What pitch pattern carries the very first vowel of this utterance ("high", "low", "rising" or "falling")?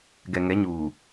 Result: low